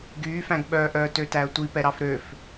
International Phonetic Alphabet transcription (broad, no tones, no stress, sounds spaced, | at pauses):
ɡ yː f æ̃ ɡ ɓ œː ʔ œː t ø t æ ə̯ tʷ i p ɛ ɾ ɑ f ɾ ø f